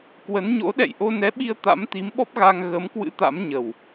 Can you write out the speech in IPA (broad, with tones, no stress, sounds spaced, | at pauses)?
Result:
k w ə˨˦ n ɲ o̰˧˥ ɗ ɛ̰˧˨ j ʔ o˧ n ɛ˨˦ ɓ i˧ ə̯ t̪ a̰˧˥ m t̪ i˨˦ m ɓ ɔ˦˥ p̚ ɣ a˧ ŋ ɣ ə˨˦ m k w ɨ̰˧˥ t̪ a̰˧˥ m ɲ ə˨˩ w